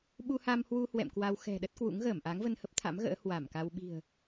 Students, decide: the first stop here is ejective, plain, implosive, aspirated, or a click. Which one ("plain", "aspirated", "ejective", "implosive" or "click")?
implosive